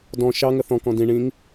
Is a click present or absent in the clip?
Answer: absent